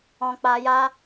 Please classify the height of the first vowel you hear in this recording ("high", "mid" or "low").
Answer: mid